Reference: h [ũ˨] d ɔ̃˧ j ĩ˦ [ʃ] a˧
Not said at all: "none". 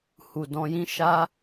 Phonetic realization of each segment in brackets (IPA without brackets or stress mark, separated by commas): u˨, ʃ